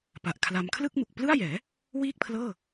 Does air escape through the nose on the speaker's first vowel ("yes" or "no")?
no